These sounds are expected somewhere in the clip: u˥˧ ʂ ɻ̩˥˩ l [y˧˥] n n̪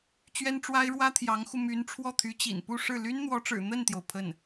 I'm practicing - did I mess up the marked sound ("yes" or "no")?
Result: yes